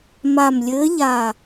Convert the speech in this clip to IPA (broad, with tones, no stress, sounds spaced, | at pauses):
m a˨˩ m lʲ ɘː˨˦ ʎ a˨˩